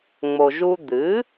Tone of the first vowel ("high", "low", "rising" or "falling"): low